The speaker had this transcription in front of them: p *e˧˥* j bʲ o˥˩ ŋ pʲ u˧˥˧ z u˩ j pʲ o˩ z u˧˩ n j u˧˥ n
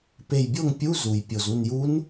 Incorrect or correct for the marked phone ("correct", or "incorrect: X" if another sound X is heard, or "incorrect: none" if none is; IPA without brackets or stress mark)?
incorrect: e˧˩